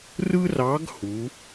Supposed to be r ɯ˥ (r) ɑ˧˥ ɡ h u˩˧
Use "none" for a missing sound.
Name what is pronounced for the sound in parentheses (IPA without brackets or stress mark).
r